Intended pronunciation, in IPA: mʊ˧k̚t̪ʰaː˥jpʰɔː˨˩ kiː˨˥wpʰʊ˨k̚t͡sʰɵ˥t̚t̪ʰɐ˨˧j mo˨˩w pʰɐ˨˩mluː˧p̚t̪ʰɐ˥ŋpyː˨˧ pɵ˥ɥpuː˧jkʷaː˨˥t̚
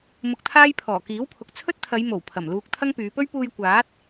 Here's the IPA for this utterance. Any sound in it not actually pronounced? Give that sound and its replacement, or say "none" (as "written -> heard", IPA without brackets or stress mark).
p̚ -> k̚